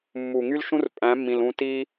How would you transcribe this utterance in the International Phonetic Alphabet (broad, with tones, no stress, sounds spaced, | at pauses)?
mː u˨ ŋ y˦ l ʃ ũ˦ r pʼ æ̃˨˦ mː ĩ˨ l ũ˧ t i˦